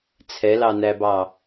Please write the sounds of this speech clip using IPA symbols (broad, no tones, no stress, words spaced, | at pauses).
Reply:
t͡sʰɛlɑnæbɑ